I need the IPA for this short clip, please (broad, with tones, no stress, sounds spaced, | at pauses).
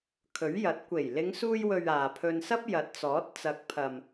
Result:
kʰ ɵ˨˥ ɥ j ɐ˨˥ t̚ kʷ e˨˩ j l ɪ˨˧ ŋ s uː˧ j w ɵ˨ ɥ aː˨ pʰ ɵ˧ n s ɐ˥ p̚ j ɐ˨˥ t̚ t͡s ɔː˨˥ t̚ t͡s ɐ˨˥ k̚ pʰ ɐ˨ m